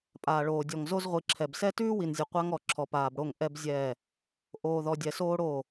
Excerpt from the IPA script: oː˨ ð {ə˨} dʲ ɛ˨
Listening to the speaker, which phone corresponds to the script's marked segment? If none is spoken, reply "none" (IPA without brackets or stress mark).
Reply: ɔ˨